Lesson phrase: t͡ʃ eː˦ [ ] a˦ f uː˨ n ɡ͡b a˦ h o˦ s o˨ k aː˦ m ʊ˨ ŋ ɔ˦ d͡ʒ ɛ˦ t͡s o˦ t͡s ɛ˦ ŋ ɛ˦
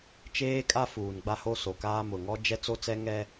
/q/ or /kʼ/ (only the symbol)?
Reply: kʼ